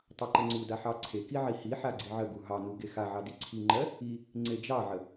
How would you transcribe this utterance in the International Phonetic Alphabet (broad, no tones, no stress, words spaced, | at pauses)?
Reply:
tˤɑǃəŋ͡ǀuda ħɑǀʰeki ʕihiħa ɡ͡ǀiʕəɡu ɦɑnu ɡexaʕɑ diǀʰiŋ͡ǃɜ | i | ŋ͡ǀed͡ʒɑʕə